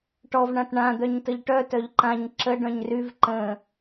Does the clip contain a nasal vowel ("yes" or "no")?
yes